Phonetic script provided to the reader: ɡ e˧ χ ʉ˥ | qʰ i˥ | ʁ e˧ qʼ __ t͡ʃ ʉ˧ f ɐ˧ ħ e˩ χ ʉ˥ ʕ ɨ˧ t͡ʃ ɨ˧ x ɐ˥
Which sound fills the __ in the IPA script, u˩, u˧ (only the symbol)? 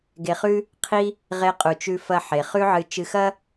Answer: u˩